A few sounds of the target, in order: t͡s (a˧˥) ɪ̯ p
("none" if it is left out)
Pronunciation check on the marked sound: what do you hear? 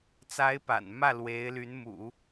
a˧˥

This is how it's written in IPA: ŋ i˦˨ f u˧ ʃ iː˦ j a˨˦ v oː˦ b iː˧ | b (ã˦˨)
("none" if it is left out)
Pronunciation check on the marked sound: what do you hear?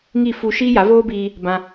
ã˧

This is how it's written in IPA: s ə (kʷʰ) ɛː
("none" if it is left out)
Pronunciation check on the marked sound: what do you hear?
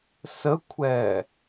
kʷʰ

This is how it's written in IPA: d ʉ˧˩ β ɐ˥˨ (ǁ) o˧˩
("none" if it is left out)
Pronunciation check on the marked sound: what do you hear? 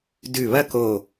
k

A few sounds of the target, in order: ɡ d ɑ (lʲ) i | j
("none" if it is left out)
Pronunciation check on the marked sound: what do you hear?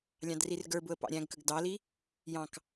l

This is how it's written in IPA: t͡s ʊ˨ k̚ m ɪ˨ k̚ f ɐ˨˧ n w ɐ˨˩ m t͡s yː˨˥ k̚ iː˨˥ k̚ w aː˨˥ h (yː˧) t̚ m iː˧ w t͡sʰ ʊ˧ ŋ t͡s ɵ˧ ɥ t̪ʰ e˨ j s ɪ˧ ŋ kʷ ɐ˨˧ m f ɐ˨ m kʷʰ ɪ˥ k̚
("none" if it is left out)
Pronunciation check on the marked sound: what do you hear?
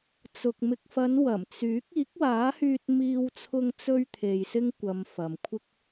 yː˧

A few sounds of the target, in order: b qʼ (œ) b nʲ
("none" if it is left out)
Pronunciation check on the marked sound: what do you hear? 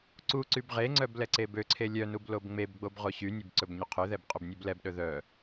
ɵ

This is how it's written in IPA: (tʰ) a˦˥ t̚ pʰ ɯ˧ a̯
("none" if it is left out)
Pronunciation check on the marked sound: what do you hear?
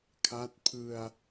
kʰ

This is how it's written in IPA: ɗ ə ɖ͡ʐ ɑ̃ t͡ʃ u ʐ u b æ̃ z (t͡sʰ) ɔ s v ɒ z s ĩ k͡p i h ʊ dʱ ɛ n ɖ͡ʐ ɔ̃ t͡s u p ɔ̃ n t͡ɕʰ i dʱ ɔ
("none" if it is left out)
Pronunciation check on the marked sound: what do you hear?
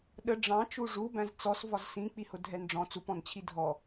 t͡s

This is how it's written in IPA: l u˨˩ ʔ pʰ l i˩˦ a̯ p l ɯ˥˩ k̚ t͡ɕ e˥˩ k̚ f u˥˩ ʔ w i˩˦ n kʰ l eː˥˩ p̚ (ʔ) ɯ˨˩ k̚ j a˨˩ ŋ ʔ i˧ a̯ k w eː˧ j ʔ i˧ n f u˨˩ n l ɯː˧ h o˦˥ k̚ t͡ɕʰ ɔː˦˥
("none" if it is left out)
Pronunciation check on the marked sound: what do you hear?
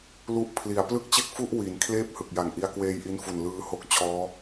h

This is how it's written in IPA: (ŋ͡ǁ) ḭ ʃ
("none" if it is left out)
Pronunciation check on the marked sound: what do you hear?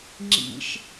ŋ͡ǁ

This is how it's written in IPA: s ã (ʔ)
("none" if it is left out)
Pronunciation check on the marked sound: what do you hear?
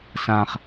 χ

